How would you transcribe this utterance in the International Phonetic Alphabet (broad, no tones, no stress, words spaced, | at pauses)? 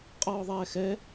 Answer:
qʼɔːðˤɛːxɛ